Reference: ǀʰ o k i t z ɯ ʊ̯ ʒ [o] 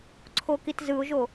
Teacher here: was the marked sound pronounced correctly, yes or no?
yes